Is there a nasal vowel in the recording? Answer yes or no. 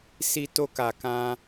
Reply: yes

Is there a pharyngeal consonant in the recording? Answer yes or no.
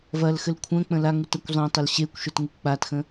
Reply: no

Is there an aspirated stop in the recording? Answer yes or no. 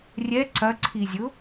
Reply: yes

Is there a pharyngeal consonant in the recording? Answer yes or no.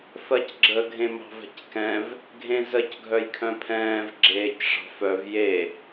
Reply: no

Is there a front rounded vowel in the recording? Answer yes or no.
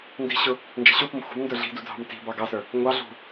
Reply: no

